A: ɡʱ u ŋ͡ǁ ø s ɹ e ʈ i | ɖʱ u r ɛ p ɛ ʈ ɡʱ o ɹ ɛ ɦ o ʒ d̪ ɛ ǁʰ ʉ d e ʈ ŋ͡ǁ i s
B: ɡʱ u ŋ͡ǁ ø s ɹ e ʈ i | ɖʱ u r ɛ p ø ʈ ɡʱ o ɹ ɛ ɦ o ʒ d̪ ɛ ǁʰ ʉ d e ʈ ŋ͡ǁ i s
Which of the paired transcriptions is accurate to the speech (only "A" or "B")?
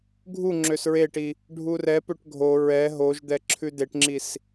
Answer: B